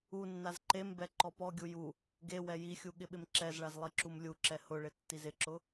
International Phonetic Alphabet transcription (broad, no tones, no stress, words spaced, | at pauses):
unːaz ǃembɛ ǃɔpɔɡʲu ju | ɡe wɛjixʲu ɠɪɓɪmǁɛzɭaz lˠiǁumlʲuǁɛ hʊɭɪ tːizɪǁʊ